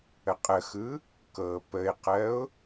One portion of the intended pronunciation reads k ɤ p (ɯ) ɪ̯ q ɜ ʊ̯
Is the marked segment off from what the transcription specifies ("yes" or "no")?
yes